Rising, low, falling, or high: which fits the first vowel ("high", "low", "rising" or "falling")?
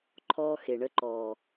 high